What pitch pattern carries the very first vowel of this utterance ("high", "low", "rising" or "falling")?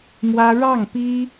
high